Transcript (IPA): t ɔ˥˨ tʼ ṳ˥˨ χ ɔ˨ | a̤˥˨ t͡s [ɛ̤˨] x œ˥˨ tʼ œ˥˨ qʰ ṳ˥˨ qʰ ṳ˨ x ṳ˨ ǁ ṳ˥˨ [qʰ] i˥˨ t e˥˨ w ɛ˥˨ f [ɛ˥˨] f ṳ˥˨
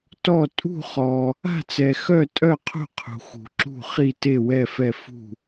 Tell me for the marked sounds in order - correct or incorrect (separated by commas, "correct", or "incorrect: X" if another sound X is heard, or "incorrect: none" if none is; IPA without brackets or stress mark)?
incorrect: ɛ˨, incorrect: χ, correct